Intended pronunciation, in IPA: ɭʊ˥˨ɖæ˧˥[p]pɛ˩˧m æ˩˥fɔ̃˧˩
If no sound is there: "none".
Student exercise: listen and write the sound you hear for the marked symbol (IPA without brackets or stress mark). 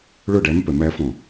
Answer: m